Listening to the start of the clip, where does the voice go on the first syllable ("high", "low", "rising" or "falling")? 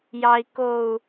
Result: low